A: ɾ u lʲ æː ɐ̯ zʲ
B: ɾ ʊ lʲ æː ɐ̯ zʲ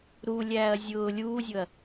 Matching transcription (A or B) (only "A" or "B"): A